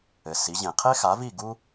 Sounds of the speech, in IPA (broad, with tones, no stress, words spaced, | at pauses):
ɘ˩ si˩˥ʑẽ˩ qʰe˥xa˩˥vi˥˩ ɡu˥